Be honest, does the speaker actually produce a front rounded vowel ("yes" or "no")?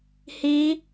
no